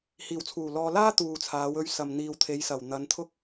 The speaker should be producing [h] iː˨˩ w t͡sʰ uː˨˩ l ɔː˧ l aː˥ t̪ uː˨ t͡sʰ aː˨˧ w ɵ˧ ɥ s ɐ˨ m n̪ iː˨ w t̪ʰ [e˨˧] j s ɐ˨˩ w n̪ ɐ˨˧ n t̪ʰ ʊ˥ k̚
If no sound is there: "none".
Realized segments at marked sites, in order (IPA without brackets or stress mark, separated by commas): h, e˨˧